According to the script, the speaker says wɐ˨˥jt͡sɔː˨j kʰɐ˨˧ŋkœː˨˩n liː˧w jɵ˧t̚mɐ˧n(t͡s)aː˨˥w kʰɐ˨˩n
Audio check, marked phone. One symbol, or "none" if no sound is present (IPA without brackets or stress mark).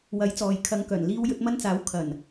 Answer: t͡s